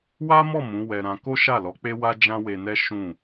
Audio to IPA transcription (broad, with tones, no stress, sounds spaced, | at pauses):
w a˦ m ɔ˦˨ m ũ˨˦ w ɛ˧ ɾ ã˧ k o˦ ʃ a˦˨ l ɔ˨˦ k͡p e˦ w a˦ d͡ʒ ã˦ w e˧ n ɛ˦ ʃ ũ˦˨